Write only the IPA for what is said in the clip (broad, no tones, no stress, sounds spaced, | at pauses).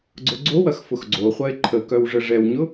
ɡ͡ǀ ʊ ɡ͡ǀ o w ɐ x f ʊ x ɡ͡ǀ o χʷ ɐ e̯ ǃʰ ə k œ w ʐ ə ʐ ɛ w ɲ ʊ